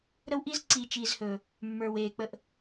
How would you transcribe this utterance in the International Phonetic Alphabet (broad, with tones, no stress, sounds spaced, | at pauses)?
ɾ ə˦ w ʔ i˦ z ǀ iː˨ t͡ʃ iː˨ z h ɵ˨ | mː ə˞˨ w eː˨ k͡p ə˦ ʔ